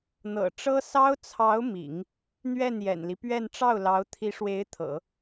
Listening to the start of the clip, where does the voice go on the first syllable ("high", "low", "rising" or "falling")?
low